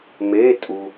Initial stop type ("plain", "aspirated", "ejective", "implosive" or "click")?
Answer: ejective